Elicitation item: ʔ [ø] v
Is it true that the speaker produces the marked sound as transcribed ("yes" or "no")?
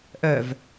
no